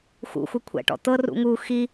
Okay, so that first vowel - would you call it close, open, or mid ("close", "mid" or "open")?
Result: close